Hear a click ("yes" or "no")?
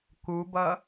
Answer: no